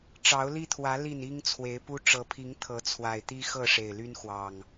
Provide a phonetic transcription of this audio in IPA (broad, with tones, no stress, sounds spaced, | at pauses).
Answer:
ʈ͡ʂ ɑ˨˦ ʊ̯ l i˦ t̪ʰ w ä˨˦ l i˥˨ n i˦ ŋ t͡sʰ w e˨˦ ɪ̯ p u˦ ʈ͡ʂ ɤ˨˦ pʰ i˨˦ ŋ t̪ʰ ɤ˨˦ t͡sʰ w a˨˩ ɪ̯ t̪ i˦ x ɤ˥˨ ʂ e˨˩ ɪ̯ l y˦ n x w ɑ˨˩ ŋ